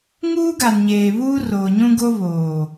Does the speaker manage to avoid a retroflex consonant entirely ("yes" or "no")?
yes